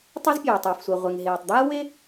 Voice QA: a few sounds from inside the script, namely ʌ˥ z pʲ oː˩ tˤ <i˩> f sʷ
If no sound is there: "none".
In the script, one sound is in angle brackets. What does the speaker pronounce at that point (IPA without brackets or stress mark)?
i˩